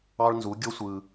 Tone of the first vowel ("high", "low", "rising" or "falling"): high